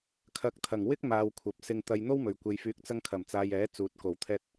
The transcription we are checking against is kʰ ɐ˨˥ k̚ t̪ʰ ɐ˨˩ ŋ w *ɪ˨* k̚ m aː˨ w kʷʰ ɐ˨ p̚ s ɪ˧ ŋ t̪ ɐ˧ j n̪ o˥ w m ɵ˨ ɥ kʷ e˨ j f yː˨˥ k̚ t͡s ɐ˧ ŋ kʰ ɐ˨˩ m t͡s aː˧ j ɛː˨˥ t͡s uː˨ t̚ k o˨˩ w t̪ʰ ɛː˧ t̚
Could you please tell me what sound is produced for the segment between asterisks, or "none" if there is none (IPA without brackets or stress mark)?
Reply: ɪ˥